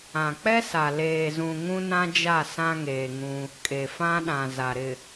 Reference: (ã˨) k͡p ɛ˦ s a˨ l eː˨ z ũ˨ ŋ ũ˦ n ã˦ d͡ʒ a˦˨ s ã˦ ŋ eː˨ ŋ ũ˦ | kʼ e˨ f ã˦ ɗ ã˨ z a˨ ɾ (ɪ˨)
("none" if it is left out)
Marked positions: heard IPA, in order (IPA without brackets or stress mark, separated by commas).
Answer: ã˨, ɪ˨